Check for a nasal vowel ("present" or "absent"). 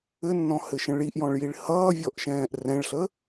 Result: present